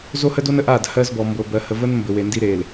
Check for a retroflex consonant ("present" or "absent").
absent